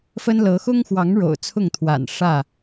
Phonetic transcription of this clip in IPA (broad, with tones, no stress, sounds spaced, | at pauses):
f ə˦ n l ɤ˨˦ x ʊ˦ ŋ x w ɑ˨˦ ŋ ɻ o̰˨˩ ʊ̯ t͡sʰ ʊ˥˨ ŋ t̪ʰ w a̰˨˩ n ʂ ä˥˨